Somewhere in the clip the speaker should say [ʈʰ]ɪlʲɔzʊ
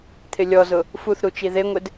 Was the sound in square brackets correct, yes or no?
no